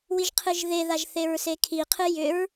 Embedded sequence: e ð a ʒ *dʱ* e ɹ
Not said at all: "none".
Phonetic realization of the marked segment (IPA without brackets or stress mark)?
θ